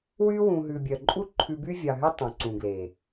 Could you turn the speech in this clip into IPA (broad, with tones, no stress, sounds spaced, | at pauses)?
w y˦ w ũ˨ ɦ ʉ˨ bʲ œ˨ ǃʼ u˦ ǃʰ ʉ˧ b y˦ vʲ ɑ˨ ɦ y˦ tˤ ũ˨ ǀ ũ˨ ɡ l e˨